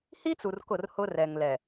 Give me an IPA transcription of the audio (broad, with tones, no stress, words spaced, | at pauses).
hi˦t͡su˨r kʊ˦˨rhʊ˦rɛ˨ŋlɛ˨